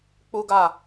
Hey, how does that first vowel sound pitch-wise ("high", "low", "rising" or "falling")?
high